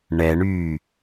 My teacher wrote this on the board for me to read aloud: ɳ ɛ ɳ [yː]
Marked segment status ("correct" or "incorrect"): correct